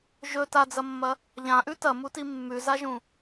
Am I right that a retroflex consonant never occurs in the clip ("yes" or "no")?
yes